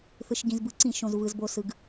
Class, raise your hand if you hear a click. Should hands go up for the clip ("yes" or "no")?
yes